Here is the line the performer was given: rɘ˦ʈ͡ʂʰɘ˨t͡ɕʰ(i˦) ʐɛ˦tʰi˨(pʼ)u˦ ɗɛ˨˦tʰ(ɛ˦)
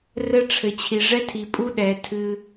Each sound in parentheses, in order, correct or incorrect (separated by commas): incorrect, correct, incorrect